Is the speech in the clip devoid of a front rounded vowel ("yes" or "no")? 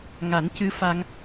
yes